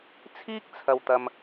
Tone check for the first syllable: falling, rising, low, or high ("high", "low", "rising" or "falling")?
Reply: high